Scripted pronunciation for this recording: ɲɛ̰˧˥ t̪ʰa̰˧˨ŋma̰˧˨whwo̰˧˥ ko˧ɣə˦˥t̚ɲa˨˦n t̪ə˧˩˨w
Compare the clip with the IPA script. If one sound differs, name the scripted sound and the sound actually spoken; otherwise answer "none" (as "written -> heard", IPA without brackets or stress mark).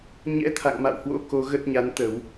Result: none